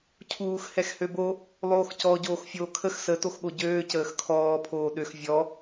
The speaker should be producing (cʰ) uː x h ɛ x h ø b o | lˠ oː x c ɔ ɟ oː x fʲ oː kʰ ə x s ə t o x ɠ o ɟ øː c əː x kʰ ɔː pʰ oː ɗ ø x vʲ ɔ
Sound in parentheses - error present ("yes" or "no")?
no